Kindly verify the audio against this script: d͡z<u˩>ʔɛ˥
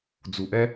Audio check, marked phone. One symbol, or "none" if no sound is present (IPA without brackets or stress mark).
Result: u˩